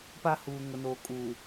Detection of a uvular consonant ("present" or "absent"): absent